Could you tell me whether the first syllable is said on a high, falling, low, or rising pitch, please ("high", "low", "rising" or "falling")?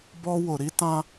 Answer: high